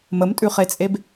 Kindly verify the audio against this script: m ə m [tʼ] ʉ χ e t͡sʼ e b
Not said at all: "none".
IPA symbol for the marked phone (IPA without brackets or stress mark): tʼ